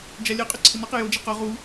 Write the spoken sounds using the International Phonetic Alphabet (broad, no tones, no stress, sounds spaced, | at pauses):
d͡ʒ a lʲ ɛ qʼ y ǀʰ ɪ n ɔ q ɪ j o d͡ʒ i q ɔ ʁ u